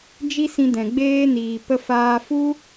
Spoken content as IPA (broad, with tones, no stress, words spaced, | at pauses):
d͡ʒi˦sĩ˧dɛ̃˨ ɡ͡beː˧niː˨pə˧ faː˧fu˦